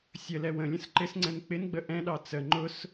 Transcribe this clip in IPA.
sʲəlɛ wə̃lʲə̃s ǃɪsŋ͡ǀɛ̃n k͡pɪnɡ͡bə ʔɛ̃ɗɑ t͡sə ŋ͡ǃʊs

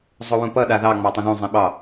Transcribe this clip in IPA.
zˤʊwũpʌ ɗaðɑ ŋ͡mɑtˤũðũ zˤĩɓɑ

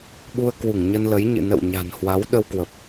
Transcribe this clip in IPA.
ɓu˧ə̯kwu˧˩ŋɲə˧nlə˨˦j ɲɨ̰˧˨nə̰˧˨wɲa̤˨˩nhwa˨˦w ɗə˧wkwə˨˩p̚

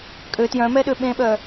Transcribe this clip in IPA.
kʼø tjœ̃mɛɗø ɓẽɓœ

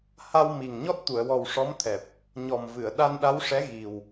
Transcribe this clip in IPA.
ha˧wmi˨˩ŋ ɲɔ˦˥t̚t̪u˨˩˨ə̯wɔ˨˩w ʂɔ˧˥mt̪ʰɛ˨˩p̚ | ɲɔ˨˩mvɨ˨˩˨ə̯ ɗa˧nɗa˧˥wʂɛ˧˥ ɣi˨˩w

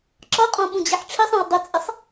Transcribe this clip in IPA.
ǁɒqʼɔ̃ ɓũd͡ʑiħʈ͡ʂʰisˤɛ̃w dˤʊt͡sʼɪsˤ

